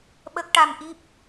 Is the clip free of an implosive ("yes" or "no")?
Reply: no